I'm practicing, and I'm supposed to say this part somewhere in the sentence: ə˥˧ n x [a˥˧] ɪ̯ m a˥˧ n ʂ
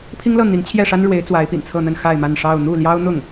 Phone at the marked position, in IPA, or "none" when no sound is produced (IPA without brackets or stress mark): a˥˧